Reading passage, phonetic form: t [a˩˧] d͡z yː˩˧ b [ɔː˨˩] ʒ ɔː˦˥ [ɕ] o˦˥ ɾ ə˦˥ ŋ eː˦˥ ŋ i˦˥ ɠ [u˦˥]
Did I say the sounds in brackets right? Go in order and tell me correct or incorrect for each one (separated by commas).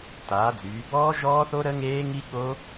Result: incorrect, incorrect, incorrect, incorrect